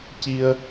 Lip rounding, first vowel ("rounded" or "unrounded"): unrounded